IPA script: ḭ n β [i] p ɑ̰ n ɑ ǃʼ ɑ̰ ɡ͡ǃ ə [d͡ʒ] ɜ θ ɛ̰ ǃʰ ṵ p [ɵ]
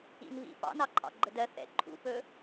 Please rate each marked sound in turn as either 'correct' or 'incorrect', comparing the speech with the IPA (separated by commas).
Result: incorrect, incorrect, correct